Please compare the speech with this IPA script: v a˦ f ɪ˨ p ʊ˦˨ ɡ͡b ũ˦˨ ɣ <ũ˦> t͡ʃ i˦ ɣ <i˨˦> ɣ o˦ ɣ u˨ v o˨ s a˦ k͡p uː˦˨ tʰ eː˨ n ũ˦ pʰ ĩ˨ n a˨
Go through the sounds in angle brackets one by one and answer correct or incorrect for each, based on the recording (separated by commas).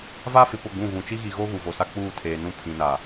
incorrect, incorrect